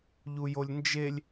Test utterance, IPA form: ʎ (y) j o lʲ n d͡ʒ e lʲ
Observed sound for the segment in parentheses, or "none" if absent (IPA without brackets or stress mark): u